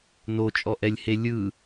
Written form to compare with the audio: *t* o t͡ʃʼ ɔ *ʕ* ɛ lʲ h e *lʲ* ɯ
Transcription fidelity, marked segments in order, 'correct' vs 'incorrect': incorrect: n, incorrect: ʔ, correct

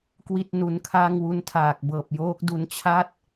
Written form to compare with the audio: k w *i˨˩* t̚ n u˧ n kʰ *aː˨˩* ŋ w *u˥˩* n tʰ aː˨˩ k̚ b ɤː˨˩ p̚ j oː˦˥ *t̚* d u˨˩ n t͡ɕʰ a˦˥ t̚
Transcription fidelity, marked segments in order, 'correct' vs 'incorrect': incorrect: i˥˩, incorrect: aː˥˩, incorrect: u˦˥, incorrect: k̚

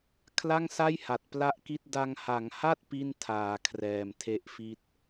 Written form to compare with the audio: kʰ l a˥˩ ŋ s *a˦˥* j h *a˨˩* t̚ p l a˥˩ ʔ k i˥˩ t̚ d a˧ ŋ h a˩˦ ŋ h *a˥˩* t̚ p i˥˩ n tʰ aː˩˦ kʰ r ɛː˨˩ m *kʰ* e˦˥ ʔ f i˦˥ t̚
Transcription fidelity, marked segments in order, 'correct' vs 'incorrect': incorrect: a˥˩, correct, correct, incorrect: tʰ

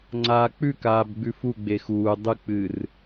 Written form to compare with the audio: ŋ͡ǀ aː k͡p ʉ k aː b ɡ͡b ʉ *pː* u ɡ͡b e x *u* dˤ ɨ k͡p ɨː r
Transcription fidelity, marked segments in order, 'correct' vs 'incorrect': incorrect: f, incorrect: uː

